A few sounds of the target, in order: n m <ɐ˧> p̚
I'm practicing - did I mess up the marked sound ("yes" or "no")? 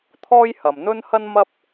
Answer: yes